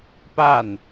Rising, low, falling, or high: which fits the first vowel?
falling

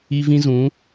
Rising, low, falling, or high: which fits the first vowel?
high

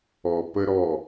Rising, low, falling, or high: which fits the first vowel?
low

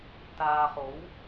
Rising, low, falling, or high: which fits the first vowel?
low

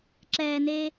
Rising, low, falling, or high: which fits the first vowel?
low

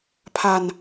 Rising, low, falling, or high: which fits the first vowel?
low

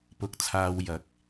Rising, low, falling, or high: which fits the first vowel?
rising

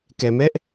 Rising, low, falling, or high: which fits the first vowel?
low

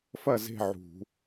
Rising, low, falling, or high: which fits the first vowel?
falling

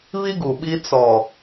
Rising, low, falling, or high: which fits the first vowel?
high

